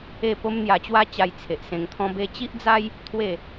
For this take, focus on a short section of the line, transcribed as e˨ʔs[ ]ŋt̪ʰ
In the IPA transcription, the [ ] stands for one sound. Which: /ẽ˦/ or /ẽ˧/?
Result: ẽ˧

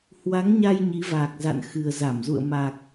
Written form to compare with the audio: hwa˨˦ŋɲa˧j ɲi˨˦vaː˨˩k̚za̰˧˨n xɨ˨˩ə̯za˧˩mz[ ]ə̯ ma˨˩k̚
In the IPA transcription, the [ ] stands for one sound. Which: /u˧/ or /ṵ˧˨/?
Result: ṵ˧˨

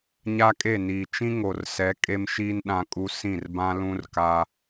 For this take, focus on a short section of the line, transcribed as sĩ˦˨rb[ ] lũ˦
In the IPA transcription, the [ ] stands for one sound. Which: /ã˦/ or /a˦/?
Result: ã˦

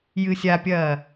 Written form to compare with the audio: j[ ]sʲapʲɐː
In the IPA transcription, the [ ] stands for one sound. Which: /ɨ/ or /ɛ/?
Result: ɨ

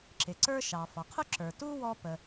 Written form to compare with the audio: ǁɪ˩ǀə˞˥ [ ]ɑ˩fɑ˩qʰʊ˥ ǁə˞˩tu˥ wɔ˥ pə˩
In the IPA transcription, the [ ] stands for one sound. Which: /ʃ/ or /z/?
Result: ʃ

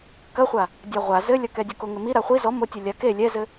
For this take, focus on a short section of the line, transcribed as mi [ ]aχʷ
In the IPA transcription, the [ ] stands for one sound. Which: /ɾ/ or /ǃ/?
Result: ɾ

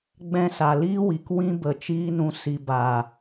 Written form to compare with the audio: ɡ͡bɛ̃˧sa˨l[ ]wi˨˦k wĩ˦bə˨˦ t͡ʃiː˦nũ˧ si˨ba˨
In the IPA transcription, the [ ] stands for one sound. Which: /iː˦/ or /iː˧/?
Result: iː˦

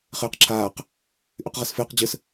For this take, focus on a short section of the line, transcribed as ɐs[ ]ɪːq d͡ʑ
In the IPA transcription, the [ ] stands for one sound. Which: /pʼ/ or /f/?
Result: f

